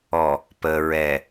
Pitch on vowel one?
low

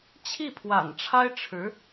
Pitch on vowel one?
falling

